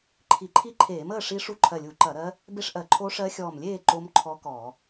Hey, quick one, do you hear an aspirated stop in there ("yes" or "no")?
yes